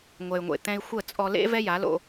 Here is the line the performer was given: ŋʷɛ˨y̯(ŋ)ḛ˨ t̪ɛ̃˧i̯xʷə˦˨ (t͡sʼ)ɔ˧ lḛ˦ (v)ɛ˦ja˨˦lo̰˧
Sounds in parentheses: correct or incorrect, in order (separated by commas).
incorrect, correct, correct